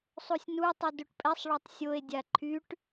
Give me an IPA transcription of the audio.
sˤ u sʲ n u tˤ ɛ d u ʈ pʼ ɛ sˤ ɭ o tˤ sʲ o e̯ dʲ a ǃʰ y ʈ

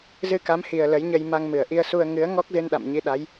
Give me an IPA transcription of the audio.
z ɨ˧ k a˨˦ m h i˨˩ ə̯ l ə˨˦ j ɲ ə˧ j m a˧ ŋ m ɨ˧˩ ə̯ ʔ i˧ ə̯ s u˧ ə̯ ŋ ɨ˨˦ ə̯ ŋ ɔ˦˥ k̚ z ɨ˧ n ɗ a̰˧˨ m ɲ i˨˦ ɗ a˨˦ j

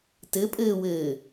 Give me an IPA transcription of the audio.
t ɘ pʼ ɘː w ɘː

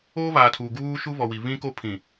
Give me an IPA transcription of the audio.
oː˦ β aː˨ tʰ uː˨ ɡ uː˦ ʃ u˦ β ɔ˨ w i˨ β ĩ˦ k o˦ pʰ ĩ˨

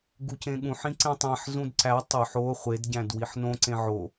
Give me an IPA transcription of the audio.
ɡ u c ẽ ɠ ũ ħ ĩ ǀ ẽ tˤ æ̃ ħ z ũ d ǀ æ tˤ ɵ ħ o χʷ e d ɟ æ̃ d w i ħ n õ ǀ ẽ ʕ o

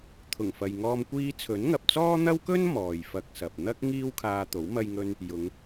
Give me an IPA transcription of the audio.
t̪ʰ ʊ˨˩ ŋ f ɐ˨ j ŋ ɔː˧ m kʷ iː˧ t͡sʰ ɵ˨˥ n ŋ ɐ˨ p̚ t͡s ɔː˥ n̪ ɐ˥ w k ɵ˥ n m ɔː˨ j f ɐ˧ k̚ s ɐ˨ p̚ n̪ ɐ˥ k̚ ŋ iː˥ w kʰ aː˧ t̪ o˨˥ w m ɐ˧ j ŋ ɵ˧ n | j ʊ˨˧ ŋ

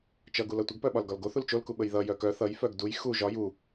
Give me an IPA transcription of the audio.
t͡ʃ ʌ ɡ u l ʌ tʷ ə ɡ p œ ɓ ɒ l ɡ ɒ l ɡ o θ u l t͡ʃ o l k u ɓ ə j ð ʌ j œ k œ θ ʌ j f œ ɡ d u j x u ʒ ɒ j u

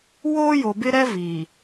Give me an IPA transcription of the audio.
w oː˦ j o˨ b ɪ˦ ɾ ɛ˦ v i˨

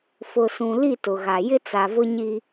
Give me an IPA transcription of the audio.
f ʊ˨ s ũ˨ l i˦˨ t ʊ˨ ɣ a˨ j ɪ˦ t͡s a˨ v ʊ˦ ɲ i˦

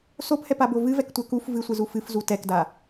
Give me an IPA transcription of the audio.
s o p h ɛ p a b o v ɨ v ɛ k tʷ ɛ k u f v ɨ sʷ ɨ z u f ɨ f z u t ɛ k d a

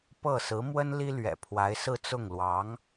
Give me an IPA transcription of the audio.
p ɤ˥˩ s ɹ̩˧˥ m w ə˥ n l i˥ l ɥ ɛ̰˨˩ pʰ w a˧˥ ɪ̯ s ɹ̩˥˧ t͡s ʊ˥˩ ŋ l w ɑ˧˥ ŋ

